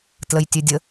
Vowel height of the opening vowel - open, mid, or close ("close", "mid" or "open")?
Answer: mid